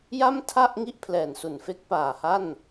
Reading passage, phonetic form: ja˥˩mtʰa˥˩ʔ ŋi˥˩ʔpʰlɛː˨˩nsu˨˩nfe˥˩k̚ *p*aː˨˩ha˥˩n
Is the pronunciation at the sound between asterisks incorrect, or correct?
correct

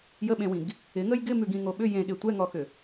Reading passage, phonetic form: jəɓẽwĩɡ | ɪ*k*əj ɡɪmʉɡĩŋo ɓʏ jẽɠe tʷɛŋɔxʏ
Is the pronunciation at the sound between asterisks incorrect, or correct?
incorrect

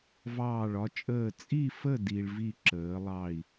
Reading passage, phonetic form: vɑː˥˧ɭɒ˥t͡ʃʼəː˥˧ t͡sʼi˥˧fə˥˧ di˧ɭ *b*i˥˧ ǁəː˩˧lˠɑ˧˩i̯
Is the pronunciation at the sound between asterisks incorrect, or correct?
incorrect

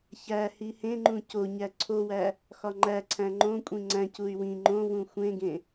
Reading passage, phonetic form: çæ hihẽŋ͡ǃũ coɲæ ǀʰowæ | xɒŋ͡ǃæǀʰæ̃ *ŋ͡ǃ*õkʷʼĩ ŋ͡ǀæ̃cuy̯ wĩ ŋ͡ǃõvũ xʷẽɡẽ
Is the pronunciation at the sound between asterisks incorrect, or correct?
correct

